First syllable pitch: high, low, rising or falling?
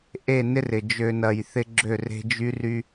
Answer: falling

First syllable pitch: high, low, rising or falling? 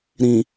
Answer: low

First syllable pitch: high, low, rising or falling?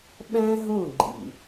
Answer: high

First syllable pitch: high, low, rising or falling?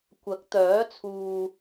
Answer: rising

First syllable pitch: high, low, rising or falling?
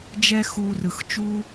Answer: high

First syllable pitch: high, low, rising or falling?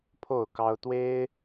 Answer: falling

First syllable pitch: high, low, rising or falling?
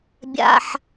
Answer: high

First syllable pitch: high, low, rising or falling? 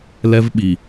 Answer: high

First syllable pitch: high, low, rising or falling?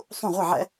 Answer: falling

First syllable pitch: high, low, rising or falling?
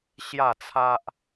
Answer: falling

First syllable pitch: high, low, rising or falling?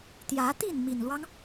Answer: rising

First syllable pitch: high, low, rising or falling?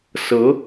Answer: rising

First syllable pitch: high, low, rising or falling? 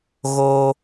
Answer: high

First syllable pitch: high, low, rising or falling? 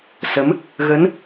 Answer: rising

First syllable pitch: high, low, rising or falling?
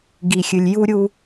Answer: low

